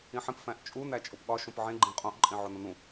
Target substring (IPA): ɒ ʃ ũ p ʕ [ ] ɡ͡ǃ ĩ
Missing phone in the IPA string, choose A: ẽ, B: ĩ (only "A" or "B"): A